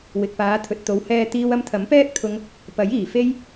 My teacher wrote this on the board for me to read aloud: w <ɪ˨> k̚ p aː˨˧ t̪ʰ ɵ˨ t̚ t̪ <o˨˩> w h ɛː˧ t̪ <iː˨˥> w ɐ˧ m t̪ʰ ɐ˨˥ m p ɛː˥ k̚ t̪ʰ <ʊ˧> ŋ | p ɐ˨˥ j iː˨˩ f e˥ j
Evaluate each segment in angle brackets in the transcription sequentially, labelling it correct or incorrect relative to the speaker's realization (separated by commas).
correct, incorrect, incorrect, correct